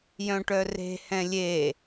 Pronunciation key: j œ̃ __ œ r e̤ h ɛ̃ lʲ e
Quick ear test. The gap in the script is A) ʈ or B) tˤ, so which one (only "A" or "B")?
A